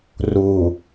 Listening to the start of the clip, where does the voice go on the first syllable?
low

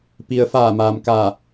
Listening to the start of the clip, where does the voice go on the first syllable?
low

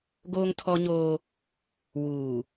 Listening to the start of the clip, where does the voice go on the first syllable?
high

